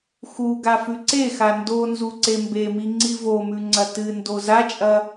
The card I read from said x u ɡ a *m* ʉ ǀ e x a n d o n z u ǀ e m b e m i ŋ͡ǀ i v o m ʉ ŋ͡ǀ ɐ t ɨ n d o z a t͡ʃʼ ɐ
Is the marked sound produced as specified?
no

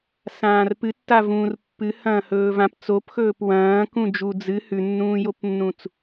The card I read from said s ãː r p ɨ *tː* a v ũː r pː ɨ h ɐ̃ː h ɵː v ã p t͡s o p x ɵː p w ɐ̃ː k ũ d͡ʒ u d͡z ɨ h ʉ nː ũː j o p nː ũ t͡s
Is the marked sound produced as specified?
yes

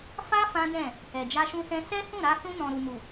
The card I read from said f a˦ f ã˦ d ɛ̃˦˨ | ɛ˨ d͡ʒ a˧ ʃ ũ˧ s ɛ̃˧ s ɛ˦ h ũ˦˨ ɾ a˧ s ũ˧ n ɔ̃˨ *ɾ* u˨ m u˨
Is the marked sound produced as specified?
yes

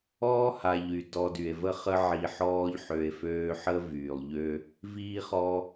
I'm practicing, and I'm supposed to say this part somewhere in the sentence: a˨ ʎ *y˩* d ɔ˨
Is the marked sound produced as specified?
yes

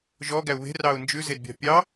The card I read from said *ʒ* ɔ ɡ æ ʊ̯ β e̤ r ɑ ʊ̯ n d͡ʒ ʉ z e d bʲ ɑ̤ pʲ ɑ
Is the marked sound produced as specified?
yes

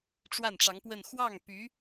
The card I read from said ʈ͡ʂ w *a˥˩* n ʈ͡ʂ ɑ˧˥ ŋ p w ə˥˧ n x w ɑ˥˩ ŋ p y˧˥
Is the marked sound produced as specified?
yes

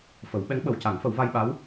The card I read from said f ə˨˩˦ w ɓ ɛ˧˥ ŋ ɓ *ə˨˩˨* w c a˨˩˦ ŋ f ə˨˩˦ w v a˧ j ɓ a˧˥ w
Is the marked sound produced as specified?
yes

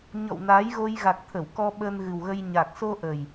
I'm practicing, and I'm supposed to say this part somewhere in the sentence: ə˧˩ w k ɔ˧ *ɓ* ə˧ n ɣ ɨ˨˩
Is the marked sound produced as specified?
yes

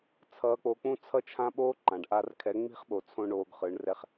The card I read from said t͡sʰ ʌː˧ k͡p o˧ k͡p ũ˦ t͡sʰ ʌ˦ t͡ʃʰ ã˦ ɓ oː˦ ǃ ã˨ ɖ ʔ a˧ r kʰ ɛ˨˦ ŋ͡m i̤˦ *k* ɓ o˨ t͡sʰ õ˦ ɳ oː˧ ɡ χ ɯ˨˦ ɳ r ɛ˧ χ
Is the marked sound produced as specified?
no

